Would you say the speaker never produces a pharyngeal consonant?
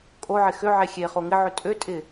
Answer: no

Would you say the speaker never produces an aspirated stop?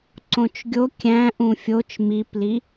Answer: yes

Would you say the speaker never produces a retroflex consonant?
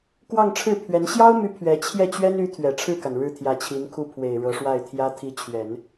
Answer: no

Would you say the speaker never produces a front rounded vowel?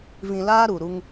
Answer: yes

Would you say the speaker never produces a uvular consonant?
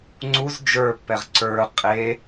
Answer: no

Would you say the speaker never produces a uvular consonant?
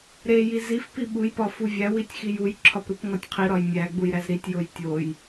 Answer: no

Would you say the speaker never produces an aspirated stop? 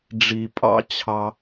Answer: no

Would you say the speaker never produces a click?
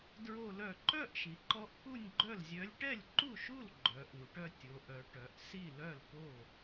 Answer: no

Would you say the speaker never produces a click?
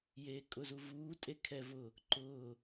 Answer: no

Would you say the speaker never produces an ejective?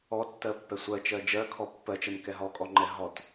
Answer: no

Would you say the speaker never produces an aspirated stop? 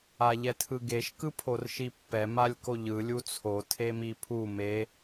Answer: no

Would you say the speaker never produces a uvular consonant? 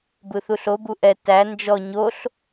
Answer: yes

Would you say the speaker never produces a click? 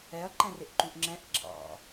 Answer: no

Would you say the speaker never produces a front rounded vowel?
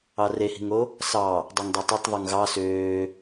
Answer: no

